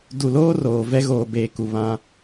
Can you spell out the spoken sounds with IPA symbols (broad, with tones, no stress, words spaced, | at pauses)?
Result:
du˨loː˦roː˨ vɛ˦ɣoː˨beː˨ ku˨βã˦